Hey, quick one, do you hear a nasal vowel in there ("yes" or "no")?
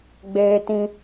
yes